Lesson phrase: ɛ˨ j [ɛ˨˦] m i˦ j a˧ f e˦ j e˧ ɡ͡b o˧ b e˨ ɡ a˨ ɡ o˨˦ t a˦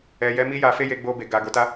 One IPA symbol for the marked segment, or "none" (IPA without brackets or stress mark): ɛ˨˦